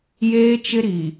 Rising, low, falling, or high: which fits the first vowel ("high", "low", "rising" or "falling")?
high